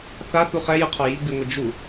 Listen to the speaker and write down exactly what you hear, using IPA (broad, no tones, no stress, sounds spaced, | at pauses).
θ a θ u χ ɛ j ɯ qʰ ɔ j i ɡ͡b i ŋʷ ɛ d͡ʒ u